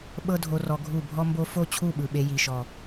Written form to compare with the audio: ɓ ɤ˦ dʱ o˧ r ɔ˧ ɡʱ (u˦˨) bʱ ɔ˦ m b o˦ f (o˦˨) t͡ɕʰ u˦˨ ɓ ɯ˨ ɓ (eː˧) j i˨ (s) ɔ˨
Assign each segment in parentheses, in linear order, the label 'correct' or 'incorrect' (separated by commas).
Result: correct, correct, incorrect, incorrect